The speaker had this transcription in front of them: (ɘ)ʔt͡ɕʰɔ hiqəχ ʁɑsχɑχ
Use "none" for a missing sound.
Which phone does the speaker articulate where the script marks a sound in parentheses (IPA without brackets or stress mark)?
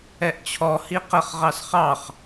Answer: ɛ